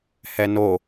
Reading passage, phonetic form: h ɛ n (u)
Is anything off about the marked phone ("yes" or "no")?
yes